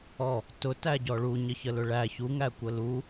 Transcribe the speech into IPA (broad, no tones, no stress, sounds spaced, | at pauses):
ɔ | t ʊ t æ ɟ ɔ ɭ u ɲ ə ç ə l ʊ ɭ æ ç u ŋ æ kʷ ə l u